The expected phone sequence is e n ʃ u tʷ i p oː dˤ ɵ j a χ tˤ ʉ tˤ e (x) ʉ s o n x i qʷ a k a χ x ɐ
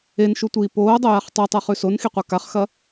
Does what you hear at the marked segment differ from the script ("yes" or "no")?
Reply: yes